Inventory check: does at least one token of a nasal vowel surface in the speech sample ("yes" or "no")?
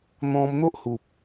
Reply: yes